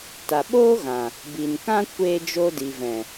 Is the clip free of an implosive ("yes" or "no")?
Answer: no